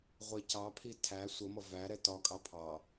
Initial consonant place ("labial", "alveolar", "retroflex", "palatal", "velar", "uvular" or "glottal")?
uvular